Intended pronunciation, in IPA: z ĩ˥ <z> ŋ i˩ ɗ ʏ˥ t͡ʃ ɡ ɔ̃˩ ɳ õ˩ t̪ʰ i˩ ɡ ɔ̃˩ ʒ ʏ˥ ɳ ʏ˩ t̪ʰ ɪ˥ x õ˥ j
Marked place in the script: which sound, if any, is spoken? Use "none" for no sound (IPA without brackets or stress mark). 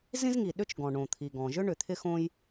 z